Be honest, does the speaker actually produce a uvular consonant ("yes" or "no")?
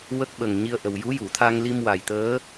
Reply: no